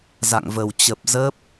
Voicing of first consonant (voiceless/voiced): voiced